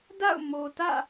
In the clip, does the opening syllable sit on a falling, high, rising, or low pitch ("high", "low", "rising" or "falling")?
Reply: falling